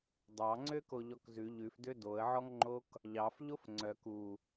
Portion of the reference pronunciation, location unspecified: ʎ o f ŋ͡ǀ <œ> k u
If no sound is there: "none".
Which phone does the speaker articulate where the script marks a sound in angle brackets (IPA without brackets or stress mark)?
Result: œ